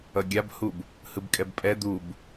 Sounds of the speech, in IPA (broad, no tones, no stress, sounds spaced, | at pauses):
ʌ ɡʲ a b h u b | h ɯ b kʼ ɛ b pʼ ɛ d̪ u b